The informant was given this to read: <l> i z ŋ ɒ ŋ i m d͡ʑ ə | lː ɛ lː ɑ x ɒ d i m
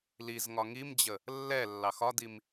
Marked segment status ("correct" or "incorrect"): correct